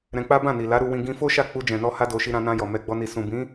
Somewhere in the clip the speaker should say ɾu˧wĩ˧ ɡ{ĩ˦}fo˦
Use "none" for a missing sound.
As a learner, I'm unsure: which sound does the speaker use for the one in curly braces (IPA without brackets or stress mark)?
ĩ˧